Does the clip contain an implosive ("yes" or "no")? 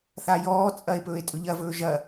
no